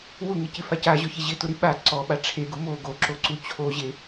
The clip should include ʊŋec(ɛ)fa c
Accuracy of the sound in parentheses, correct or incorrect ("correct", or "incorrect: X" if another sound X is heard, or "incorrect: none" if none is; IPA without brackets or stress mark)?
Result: incorrect: ɪ